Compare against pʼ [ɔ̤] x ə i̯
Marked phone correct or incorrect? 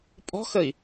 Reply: correct